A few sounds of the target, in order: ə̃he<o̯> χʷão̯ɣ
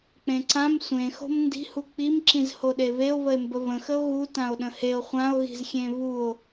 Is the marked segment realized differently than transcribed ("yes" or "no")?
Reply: no